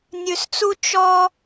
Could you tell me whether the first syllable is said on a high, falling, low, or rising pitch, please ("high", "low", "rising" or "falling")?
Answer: low